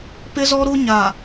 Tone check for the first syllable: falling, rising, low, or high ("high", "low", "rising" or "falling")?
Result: high